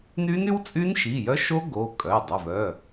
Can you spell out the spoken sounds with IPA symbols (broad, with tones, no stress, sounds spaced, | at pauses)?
n y˦˥ n y˦˥ w t͡sʼ y˦˥ n ʃ i˩˧˩ j œ˦˥ ʃ o˦˥ ɡ o˩˧˩ kʼ œ˩˧˩ j dˤ ø˩˧˩ v œ˩˧˩